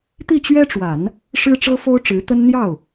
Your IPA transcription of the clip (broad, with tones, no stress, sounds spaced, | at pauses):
t̪ i˥˩ t͡ɕ ɥ ɛ˥ ʈ͡ʂ w a˨˩˦ n | ʂ ɻ̩˥ ʈ͡ʂ ɤ˥ f o˥ ʊ̯ ʈ͡ʂ ɻ̩˧˥ t̪ ə˥ n n̪ j ɑ˥˩ ʊ̯